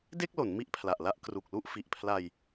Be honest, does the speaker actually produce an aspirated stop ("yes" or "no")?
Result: yes